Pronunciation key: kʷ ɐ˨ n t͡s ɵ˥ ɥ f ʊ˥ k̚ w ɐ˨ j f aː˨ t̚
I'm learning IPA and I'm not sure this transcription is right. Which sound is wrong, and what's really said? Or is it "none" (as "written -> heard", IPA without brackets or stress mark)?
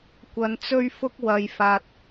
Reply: none